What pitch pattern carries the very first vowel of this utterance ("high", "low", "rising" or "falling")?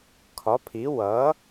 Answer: rising